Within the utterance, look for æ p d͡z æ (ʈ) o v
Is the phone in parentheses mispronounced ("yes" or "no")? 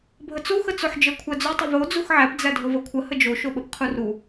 yes